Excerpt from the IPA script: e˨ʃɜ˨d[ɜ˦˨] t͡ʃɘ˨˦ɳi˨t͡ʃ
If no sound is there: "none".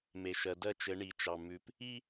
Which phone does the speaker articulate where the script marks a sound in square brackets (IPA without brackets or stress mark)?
ɜ˦˨